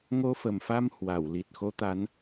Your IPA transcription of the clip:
ŋo˧fə˨˩mfa˧m hwa˧˩w li˨˩t̚ xo˨˦t̪a˨˦n

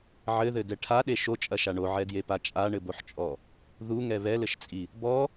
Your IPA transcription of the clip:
ʕɘðɘdɛ ʈʰaɗe ʃot͡ʃʼɐʃa ɳoʕɛdjepa t͡ʃʼaɳɘboħt͡ʃʼɔ | ðuŋɛ βɛlɘʃt͡sʼi | bɔ

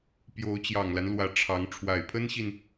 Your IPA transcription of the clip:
pjo˧˥ʊ̯t͡ɕjɑ˨˩ŋla˦nlwä˨˩ ʈ͡ʂʰɑ˧˥ŋ ʈ͡ʂʰwa˨˩ɪ̯pʰə˥nɕi˨n

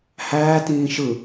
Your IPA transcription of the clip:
hæːtĩː ʃɯ

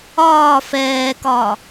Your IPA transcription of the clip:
ɒː fɛːkɒː

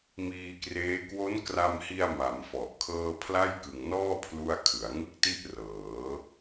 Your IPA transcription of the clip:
miː˧kreː˦˥ kwo˦˥nkra˧mhi˧a̯ma˩˦m fɔ˨˩ʔkʰɤː˥˩ pʰla˥˩jkɯ˨˩ŋnɔː˥˩ pʰlu˥˩a̯ kʰɯ˩˦a̯ŋɯ˥˩k̚ti˥˩ʔ rɤː˩˦

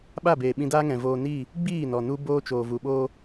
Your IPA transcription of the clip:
ɓa˦˨beː˨ ɓĩ˧daː˦ ŋɛ̃˨voː˧niː˦˨ | ɡ͡biː˦˨nɔ˨ nu˦boː˦ t͡ʃoː˨vu˨ɓoː˦

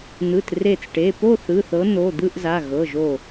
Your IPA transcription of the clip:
n̪ɯ˩˧˩tre˧˩t͡sʈe˩˧˩ po˥˧θɯ˩˧˩θɤ˨˦n̪o˩˧˩ d̪ɯ˥˧ʔza˩˧˩ ɣɤ˩˧˩ʒo˧˩

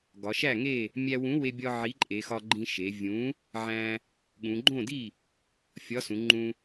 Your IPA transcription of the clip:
ɡɒ˩˧ʃæ˥˩ ŋe˥˩ | mʲæ˧wũ˨˥we˧bʲɒ˧ ʕi˨˥ǃʼe˩˧xɒ˧ ɡ͡ǃĩ˧ʃe˩˧vʲũ˨˥ | ʕæ̃˧ | ɠũ˩˧ɡ͡ǃõ˥˩di˥˩ | fʲɒ˨˥sũ˩˧ ŋ͡ǃũ˧

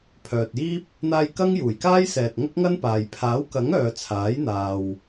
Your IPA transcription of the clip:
pʰœː˨t̚jiː˥p̚ | n̪aː˧j kɐ˥ŋjuː˨˩jkaː˥jsɛː˨t̚ ŋɐ˥k̚ŋɐ˥npaː˨j pʰaː˨˥wkɐ˨˥ŋ œː˨ t͡sʰaː˨˥jn̪aː˨w

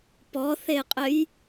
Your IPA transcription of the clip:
pɔθeqʼɘj

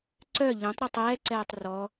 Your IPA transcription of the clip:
ǀœ ʎœ̃tˤ ɾɛtˤɛːǀɛːtˤ rɔ

